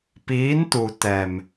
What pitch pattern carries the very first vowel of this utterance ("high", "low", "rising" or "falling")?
rising